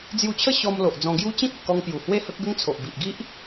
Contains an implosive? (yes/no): no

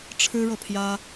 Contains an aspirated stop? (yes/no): yes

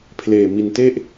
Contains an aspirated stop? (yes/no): yes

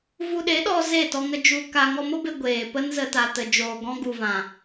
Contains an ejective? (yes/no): no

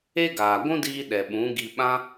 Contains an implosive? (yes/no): yes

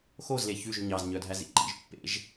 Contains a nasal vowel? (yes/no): no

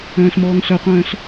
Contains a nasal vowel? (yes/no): yes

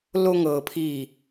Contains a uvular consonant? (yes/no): no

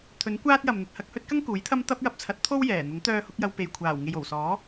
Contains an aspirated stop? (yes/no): yes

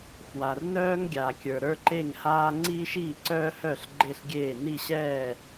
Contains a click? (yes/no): yes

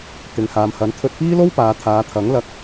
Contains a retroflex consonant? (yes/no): no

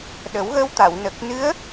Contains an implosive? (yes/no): yes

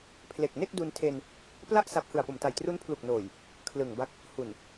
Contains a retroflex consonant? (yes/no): no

